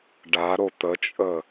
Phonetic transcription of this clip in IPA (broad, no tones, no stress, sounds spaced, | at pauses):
ɖ a ɾ o t̪ ə t͡ʃʼ ə